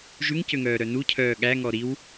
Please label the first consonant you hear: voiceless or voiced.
voiced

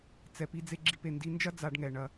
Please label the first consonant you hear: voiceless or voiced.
voiceless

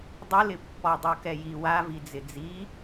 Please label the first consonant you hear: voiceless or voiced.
voiced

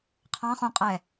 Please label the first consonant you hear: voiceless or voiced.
voiceless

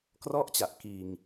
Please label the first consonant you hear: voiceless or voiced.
voiceless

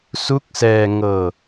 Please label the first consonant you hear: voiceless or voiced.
voiceless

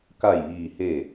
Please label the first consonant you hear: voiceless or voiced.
voiceless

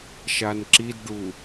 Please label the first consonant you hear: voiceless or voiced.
voiceless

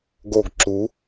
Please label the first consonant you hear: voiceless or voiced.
voiced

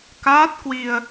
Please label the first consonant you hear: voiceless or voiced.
voiceless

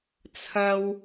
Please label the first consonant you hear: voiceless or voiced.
voiceless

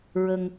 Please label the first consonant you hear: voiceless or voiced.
voiced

